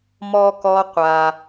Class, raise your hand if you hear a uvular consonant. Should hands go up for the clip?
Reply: yes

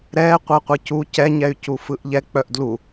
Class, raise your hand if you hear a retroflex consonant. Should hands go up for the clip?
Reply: no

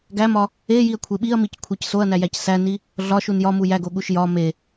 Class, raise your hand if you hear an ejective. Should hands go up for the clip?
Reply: no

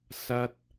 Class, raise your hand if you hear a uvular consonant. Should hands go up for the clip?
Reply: no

